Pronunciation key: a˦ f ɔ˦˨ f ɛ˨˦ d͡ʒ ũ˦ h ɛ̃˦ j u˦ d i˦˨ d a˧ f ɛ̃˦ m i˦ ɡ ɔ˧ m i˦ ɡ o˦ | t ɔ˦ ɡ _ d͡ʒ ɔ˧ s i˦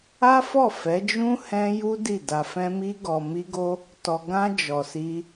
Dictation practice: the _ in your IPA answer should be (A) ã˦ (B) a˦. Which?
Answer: A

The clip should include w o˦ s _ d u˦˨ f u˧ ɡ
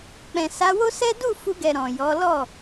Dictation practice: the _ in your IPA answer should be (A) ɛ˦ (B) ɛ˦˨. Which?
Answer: A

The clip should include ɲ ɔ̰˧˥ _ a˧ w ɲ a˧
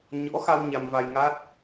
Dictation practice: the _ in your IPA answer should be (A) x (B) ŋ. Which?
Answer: A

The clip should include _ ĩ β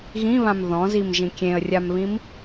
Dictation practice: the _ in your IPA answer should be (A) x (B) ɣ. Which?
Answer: B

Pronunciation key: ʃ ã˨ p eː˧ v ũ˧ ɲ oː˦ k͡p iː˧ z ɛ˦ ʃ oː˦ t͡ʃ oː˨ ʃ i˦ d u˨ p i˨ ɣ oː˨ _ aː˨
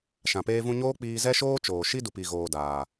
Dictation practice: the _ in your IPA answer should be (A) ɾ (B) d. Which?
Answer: B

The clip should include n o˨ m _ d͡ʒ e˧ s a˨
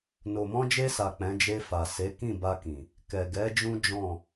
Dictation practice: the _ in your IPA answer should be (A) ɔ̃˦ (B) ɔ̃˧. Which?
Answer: B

